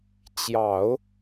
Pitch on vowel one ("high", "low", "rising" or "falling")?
low